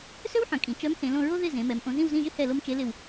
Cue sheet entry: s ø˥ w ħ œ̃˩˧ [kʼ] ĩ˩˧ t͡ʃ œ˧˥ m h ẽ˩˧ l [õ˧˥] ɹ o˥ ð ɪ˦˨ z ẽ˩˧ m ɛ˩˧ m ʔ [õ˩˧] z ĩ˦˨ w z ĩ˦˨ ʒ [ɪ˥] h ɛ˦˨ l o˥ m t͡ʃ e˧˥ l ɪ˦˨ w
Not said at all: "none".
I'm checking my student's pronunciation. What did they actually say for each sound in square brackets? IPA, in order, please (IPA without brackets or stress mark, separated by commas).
kʼ, õ˦˨, õ˩˧, ɪ˥